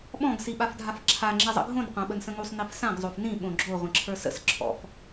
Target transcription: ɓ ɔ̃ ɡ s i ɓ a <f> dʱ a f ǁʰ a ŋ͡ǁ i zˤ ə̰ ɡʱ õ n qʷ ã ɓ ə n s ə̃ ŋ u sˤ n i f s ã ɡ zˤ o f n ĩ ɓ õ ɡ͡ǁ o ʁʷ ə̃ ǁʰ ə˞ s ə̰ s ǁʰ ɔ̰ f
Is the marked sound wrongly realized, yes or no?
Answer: no